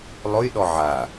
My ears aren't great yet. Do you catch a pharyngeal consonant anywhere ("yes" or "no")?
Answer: yes